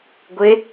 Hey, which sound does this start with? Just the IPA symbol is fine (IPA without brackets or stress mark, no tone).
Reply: ɡʷ